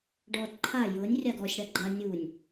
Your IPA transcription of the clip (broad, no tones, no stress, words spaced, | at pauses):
ɖɔd ǃʰa jɤnʲ rʲaɡɔsʲ ɽaɡ͡ǃa nʲunʲ